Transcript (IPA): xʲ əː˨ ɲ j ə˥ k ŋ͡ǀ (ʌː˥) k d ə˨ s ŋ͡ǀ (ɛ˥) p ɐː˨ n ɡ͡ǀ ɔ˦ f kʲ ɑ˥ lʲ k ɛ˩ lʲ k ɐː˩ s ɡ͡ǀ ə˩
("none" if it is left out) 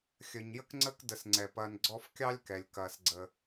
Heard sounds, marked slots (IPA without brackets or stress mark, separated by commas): əː˥, ɛ˩